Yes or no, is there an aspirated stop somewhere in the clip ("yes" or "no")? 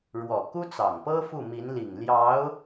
no